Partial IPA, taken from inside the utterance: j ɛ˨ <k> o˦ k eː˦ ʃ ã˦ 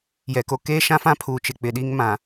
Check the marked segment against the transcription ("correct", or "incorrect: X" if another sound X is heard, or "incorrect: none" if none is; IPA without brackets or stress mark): correct